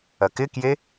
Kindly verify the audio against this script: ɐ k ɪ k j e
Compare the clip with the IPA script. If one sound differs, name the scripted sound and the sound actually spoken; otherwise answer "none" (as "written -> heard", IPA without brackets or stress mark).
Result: none